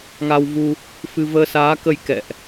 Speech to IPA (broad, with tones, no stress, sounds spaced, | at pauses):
ŋ a˧ w v u˧ | f ɨ˧ v əː˧ s aː˨˦ k ə˧ j k ɛ̰˧˨ ʔ